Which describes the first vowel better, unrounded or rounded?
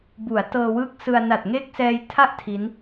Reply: rounded